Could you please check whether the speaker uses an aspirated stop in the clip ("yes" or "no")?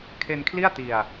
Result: yes